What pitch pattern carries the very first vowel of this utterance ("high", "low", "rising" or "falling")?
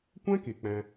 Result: high